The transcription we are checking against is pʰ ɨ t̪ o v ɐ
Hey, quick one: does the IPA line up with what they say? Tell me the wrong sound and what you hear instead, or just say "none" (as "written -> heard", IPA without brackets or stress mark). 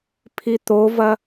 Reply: ɨ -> i